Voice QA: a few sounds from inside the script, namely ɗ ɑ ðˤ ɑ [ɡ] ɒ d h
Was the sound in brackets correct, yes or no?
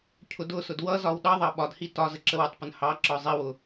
no